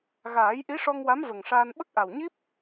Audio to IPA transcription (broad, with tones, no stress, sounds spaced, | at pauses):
ɣ aː˨˩˦ j ʔ i˧˥ ʂ ɔ˧ ŋ w a˧˥ m v ə˨˩ ŋ ʂ aː˧ n ɓ ə˦˥ k̚ ʔ a˨˩ w ɲ i˦˥ p̚